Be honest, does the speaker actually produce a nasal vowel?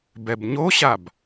no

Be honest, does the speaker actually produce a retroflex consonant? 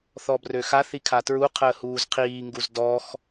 no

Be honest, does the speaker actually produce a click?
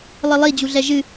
no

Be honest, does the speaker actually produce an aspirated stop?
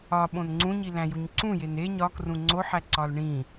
no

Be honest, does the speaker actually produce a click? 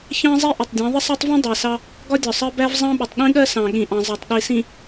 no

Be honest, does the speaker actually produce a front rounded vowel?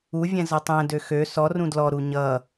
yes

